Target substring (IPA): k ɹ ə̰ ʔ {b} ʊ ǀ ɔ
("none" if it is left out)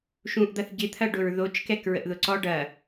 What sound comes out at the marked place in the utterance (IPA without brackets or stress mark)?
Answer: ð